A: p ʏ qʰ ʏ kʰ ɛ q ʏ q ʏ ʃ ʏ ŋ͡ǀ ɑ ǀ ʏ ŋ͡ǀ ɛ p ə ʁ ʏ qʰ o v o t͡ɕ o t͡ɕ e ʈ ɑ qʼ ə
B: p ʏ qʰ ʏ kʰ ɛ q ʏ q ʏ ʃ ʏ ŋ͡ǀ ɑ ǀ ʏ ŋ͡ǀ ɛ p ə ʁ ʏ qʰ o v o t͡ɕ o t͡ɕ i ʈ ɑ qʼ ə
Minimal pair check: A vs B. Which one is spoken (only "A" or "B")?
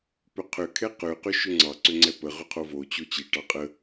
B